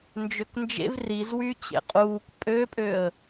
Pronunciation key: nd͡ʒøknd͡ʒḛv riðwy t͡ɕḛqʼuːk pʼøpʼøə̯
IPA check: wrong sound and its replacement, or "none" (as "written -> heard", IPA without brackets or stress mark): ð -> z